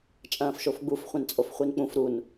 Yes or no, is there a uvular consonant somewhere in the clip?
yes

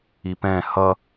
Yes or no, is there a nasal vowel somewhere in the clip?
yes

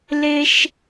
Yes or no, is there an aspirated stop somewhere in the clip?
no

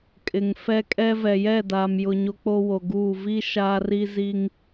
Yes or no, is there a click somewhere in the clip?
no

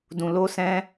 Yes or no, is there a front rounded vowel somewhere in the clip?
no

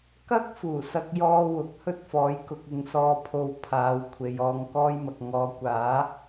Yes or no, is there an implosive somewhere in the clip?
no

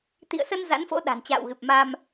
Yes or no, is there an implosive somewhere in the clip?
yes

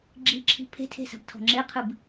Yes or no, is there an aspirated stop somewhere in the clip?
yes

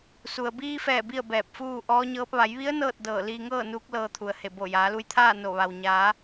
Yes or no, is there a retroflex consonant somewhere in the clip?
no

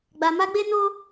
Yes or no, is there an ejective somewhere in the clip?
no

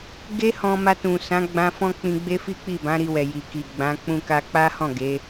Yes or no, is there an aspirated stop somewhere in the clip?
no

